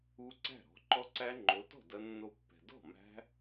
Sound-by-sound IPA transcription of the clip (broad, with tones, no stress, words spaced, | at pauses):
u˦˥ǀæ̤˥˩ ɾɔ̤˨˦ǃɔ˦˥ǀæ˦˥ ŋ͡ǃo˨˦tɔ̤˥˩ dɐ˦˥nːo˦˥ pːɛ̤˨ dɔ̤˥˩mæ̤˦˥